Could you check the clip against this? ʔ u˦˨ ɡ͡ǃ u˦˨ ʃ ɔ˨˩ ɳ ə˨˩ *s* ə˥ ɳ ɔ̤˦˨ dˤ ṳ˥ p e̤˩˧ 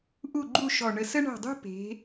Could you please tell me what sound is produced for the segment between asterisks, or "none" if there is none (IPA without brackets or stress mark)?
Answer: s